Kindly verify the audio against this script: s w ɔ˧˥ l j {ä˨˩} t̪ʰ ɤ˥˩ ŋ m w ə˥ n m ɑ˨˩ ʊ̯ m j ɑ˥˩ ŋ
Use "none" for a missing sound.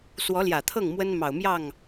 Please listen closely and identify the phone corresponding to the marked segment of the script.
ä˨˩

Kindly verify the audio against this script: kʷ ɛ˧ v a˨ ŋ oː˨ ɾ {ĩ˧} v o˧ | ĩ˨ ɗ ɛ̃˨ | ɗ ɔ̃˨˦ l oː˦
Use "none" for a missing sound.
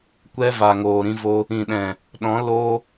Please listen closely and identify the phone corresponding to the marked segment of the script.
ĩ˧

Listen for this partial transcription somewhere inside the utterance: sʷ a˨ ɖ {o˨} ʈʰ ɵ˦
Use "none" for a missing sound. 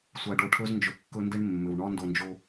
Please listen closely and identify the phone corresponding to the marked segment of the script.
o˨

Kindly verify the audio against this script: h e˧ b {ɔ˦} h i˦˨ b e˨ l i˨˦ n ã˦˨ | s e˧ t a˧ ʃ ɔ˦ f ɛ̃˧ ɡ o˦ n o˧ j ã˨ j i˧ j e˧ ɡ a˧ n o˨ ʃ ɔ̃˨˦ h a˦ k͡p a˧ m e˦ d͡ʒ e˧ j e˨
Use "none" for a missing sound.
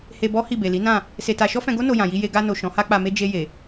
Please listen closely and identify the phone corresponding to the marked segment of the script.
ɔ˦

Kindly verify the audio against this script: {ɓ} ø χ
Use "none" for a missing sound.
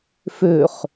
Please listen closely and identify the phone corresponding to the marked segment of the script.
f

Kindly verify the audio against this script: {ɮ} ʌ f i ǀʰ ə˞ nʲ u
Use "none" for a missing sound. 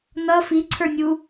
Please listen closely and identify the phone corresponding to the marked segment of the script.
n̪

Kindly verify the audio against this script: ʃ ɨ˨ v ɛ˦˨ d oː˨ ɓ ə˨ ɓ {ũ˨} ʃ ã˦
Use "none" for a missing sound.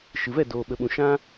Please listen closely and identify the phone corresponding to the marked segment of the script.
ũ˨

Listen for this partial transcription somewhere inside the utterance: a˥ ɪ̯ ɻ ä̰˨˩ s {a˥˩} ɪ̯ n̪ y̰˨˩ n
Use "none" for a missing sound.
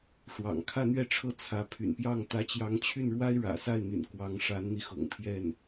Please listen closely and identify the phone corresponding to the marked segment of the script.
a˥˩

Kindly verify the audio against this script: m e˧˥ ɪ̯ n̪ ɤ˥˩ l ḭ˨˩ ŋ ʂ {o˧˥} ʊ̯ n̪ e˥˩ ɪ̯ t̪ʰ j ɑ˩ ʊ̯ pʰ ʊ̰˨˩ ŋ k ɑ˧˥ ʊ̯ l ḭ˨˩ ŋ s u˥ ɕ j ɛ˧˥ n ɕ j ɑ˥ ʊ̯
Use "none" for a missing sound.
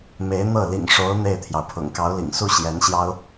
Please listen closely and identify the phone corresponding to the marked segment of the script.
o˧˥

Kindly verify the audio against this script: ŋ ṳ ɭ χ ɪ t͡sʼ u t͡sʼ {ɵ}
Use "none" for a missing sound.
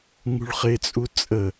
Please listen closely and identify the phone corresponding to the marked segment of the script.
ə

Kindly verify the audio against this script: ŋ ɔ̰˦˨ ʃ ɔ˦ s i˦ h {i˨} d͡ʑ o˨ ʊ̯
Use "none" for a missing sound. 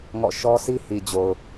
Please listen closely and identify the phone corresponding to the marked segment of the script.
i˨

